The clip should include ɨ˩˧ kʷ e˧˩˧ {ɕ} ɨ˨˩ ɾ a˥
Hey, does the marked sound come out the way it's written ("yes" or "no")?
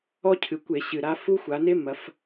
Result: yes